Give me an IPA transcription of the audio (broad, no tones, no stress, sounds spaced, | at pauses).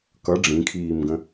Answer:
k ʌ ɖ͡ʐ ĩ kʰ iː m ɡ ə̃